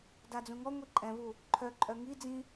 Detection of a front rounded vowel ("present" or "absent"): present